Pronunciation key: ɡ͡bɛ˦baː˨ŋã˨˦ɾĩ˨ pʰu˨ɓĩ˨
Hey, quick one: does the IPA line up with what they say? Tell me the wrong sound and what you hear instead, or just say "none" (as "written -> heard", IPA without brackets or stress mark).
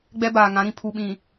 none